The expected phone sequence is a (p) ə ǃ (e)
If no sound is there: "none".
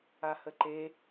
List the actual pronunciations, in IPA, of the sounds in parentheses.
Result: h, e

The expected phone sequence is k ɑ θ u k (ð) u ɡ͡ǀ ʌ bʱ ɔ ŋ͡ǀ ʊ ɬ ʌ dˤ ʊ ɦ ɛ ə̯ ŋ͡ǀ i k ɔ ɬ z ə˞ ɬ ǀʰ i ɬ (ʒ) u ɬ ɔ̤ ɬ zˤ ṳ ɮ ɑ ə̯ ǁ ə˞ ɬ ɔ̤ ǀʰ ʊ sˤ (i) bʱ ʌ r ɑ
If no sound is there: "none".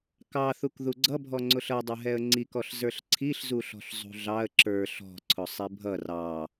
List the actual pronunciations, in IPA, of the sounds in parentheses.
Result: ð, z, i

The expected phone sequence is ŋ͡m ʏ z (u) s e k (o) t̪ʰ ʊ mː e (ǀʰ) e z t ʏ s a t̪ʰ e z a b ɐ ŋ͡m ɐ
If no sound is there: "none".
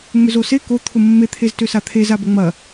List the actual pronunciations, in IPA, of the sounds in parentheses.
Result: o, o, t̪ʰ

